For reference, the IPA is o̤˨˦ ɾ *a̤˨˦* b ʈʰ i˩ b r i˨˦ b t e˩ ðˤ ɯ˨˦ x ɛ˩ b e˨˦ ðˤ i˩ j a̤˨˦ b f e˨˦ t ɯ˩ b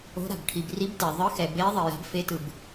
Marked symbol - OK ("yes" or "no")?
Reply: no